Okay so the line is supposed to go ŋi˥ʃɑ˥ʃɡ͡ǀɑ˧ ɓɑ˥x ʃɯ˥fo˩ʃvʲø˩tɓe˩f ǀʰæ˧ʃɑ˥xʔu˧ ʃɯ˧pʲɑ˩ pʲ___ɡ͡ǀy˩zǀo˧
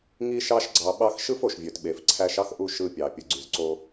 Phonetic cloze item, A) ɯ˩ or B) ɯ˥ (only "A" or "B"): A